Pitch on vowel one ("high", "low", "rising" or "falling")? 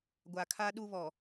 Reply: low